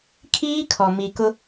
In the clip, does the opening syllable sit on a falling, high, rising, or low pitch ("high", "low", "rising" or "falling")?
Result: high